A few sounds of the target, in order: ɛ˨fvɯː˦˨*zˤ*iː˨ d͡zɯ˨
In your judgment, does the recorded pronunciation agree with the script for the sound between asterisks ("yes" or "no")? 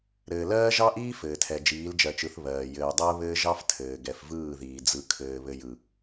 no